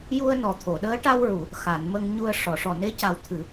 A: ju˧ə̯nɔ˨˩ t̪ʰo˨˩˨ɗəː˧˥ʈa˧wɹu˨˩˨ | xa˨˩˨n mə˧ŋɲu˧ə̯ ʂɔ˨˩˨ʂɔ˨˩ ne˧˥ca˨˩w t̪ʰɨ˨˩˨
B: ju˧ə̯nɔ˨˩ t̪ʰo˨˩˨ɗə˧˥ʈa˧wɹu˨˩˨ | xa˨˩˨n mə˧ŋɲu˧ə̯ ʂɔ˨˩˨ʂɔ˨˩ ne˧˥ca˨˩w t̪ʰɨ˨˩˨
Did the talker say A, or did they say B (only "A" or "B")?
A